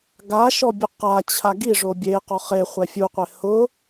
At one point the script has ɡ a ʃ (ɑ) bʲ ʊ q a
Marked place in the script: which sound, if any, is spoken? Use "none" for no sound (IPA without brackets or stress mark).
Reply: ɔ